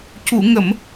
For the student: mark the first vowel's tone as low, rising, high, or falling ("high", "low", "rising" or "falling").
low